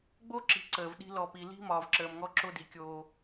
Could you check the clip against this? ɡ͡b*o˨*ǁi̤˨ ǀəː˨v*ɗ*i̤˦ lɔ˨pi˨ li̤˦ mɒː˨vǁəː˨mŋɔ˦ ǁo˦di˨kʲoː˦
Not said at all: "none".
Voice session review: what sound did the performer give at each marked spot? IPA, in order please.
o˦, ɗ

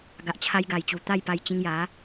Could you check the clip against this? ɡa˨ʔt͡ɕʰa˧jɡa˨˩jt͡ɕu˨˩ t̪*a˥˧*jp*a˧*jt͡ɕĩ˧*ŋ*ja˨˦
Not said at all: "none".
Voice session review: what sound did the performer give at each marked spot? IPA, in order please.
a˥˧, a˧, ŋ

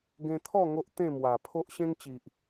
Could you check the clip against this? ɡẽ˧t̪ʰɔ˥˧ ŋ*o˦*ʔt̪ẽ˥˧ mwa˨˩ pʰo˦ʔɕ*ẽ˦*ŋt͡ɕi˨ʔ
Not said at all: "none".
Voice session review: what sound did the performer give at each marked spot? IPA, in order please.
o˦, ẽ˦

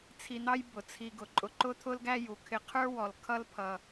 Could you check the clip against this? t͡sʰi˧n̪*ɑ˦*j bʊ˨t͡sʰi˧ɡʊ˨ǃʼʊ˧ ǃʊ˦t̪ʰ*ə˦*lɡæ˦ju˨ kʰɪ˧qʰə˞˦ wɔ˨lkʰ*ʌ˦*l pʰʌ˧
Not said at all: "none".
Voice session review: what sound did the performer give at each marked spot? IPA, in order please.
ɑ˦, ʊ˦, ʌ˦

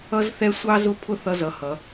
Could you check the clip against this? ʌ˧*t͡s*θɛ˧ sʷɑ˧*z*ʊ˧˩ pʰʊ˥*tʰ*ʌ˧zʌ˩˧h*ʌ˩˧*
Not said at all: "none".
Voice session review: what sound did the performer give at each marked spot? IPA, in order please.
z, z, θ, ʌ˩˧

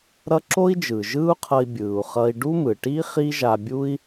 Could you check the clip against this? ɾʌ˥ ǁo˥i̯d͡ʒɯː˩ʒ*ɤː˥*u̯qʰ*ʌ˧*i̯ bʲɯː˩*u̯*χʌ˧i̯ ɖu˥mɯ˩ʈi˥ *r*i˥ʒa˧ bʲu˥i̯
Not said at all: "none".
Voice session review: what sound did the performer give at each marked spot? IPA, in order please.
ɯː˥, ʌ˧, u̯, χ

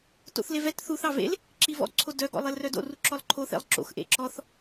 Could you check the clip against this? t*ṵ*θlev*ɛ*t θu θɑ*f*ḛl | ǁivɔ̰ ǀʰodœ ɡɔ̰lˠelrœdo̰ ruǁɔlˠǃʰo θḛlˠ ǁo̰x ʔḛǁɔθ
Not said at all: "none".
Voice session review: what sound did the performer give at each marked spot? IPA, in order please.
o̰, ɛ, v

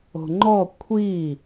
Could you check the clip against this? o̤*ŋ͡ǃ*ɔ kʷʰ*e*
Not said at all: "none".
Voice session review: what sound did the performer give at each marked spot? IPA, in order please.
ŋ͡ǃ, i

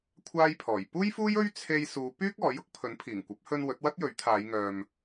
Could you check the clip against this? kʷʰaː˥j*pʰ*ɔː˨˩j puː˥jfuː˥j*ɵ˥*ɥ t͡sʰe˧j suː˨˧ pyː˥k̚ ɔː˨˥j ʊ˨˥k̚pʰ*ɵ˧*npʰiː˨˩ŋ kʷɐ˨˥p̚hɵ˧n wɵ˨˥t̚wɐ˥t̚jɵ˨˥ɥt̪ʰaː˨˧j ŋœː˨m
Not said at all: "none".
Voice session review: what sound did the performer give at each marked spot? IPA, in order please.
pʰ, ɵ˥, ɵ˨˥

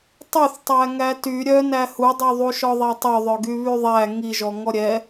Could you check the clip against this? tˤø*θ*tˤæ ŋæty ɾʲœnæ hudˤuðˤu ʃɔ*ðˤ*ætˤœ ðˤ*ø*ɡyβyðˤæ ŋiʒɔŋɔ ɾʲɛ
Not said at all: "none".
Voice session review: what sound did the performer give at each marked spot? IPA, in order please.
θ, ðˤ, œ

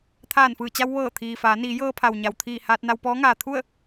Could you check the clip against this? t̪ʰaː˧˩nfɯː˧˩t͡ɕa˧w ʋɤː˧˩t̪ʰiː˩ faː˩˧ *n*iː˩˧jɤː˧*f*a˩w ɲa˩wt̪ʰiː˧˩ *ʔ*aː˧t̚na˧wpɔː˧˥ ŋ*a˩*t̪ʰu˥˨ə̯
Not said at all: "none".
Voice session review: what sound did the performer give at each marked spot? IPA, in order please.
n, pʰ, h, aː˩

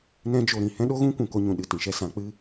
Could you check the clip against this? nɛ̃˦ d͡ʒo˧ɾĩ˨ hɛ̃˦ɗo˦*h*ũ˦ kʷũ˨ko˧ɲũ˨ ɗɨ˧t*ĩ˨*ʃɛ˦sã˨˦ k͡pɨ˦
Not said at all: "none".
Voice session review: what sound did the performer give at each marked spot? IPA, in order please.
ɣ, ĩ˨

